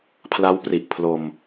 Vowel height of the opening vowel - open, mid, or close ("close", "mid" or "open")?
open